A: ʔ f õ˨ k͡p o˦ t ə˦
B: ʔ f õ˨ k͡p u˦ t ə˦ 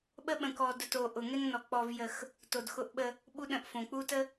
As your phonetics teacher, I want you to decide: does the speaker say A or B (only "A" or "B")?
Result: B